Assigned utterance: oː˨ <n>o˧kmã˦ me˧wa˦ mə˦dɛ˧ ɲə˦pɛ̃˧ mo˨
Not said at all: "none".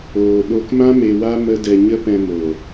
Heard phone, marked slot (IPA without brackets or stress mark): ɗ